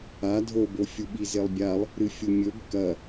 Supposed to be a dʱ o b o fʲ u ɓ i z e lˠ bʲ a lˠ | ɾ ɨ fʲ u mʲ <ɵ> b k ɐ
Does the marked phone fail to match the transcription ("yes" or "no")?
no